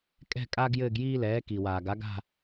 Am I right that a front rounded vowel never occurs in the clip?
yes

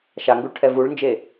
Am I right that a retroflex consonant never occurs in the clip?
no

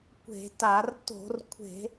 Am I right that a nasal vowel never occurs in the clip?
yes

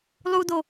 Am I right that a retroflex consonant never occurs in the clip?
yes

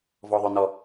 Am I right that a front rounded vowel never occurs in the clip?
no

